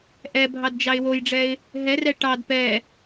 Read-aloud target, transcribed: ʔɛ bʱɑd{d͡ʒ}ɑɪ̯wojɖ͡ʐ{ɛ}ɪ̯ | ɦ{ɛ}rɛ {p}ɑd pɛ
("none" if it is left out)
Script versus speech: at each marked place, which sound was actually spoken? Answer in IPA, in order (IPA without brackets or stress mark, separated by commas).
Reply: d͡ʒ, ɛ, ɛ, ʈ